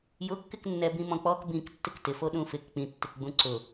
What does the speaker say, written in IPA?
j ʊ kː ɪ k nː ɛ b ĩ m ɔ̃ k͡p ɔ k b ĩ k tː ɪ k t ɪ f o ɗ ũ f ɪ k k͡p ĩ tː ɪ k ɡ͡b ũ ǀ ʊ

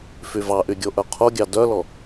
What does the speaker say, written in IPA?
f y v ɑ ʔ y ɡʲ o ʔ œ qʰ o ɡʲ ɑ d œ l ɔ

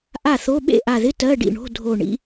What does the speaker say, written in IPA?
ʔ a˥˩ θ o˧˥˧ ɓ ḛ˥˩ ʔ a˧˩ ð ɪ˧˥˧ t ɜ˧˥˧ ɖ ḭ˥˩ ɳ o̤˧˥˧ dʱ o˧˩ ɳ ḭ˧˥˧

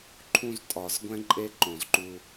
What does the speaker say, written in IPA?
ǃʰ ũ˦˨ z tʼ ɒ˨˩˦ z ɡʷ ɛ̃˦ ǃʼ e˦ ǃ õ˨˩˦ z ǃ u˦

